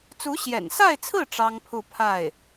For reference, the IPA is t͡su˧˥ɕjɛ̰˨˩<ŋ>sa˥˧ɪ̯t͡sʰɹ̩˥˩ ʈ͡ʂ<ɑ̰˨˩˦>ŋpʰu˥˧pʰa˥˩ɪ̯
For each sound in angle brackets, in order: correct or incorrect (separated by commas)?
incorrect, incorrect